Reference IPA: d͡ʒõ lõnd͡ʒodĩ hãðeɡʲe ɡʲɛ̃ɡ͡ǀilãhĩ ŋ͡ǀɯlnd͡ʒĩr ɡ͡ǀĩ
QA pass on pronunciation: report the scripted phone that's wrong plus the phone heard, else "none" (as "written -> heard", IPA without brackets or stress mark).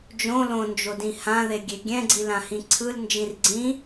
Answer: ŋ͡ǀ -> ǀʰ